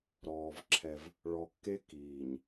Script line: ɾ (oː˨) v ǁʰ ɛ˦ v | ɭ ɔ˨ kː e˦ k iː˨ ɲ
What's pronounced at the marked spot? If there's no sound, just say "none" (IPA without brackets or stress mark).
ɔː˨